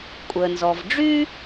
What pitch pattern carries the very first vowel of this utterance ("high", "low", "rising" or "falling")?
low